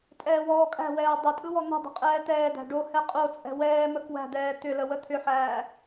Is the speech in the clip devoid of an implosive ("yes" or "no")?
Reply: yes